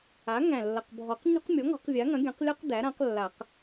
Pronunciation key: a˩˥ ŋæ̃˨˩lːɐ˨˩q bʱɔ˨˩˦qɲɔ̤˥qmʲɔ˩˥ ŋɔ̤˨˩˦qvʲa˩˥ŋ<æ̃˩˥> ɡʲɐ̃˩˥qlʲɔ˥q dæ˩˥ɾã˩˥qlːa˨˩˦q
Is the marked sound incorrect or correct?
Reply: incorrect: ɐ̃˩˥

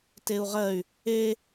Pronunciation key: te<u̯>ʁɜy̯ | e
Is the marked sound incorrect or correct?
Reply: correct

